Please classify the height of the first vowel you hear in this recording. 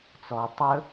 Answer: mid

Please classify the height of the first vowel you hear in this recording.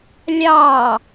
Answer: low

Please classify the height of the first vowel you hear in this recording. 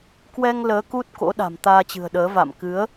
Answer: mid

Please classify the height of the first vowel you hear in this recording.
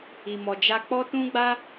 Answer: high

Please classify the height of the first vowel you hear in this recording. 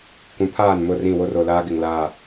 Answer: high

